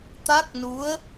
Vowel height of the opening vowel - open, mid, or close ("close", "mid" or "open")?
open